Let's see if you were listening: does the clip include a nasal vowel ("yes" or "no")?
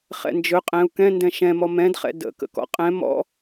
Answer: yes